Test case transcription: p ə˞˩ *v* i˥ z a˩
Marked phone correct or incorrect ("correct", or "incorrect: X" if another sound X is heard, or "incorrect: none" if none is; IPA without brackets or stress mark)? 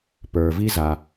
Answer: correct